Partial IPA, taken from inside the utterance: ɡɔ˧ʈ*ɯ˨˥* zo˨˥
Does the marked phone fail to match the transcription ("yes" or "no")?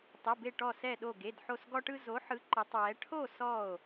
yes